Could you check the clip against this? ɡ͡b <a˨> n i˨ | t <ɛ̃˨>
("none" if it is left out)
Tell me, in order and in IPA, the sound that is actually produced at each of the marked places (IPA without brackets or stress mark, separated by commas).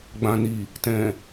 ã˨, ɛ̃˨